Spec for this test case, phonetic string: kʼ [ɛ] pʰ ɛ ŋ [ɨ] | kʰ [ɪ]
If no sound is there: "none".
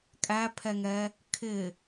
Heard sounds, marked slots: æ, ɛ, ɪ

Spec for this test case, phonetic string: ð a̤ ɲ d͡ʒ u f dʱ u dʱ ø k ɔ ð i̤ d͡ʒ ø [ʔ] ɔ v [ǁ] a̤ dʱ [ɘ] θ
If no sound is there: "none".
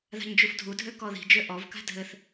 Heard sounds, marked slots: ʔ, k, ɘ

